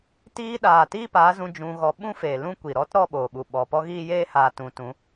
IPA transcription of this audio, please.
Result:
t iː˧ ɗ aː˨ t iː˦ p aː˨˦ z ũ˧ d͡ʒ ũ˧ ɣ ɔ˧ ɓ ũ˦ f eː˨ l ũ˦ kʷ i˨ ɾ ɔ˦ t ɾ ɔ˦˨ ɓ oː˨ ɓ u˨ ɓ ɔ˨ p ɔ˦ ɣ iː˦ j eː˦ h aː˧ t ũ˨˦ t ũ˨˦

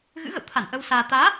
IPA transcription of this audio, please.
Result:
ɣ ɨ̰˧˥ ɣ ə̰˧˨ w t̪ʰ a˧˩ n ʔ ə˧ w s aː˧ t̪ aː˨˦

